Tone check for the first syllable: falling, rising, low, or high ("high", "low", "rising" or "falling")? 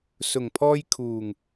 low